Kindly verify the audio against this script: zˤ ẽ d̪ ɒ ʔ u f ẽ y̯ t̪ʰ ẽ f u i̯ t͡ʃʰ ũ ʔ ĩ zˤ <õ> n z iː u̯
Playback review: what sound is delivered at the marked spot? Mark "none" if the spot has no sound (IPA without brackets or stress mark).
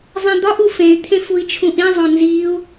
õ